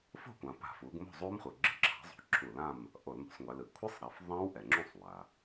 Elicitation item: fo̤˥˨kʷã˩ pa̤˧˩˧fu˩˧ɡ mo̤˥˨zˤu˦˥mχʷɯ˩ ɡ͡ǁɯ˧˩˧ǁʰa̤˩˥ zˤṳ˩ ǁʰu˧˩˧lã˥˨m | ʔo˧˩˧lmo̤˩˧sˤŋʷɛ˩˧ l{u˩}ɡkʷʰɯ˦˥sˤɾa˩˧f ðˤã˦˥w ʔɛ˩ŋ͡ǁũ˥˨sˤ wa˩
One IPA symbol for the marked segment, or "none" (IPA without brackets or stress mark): ɯ˩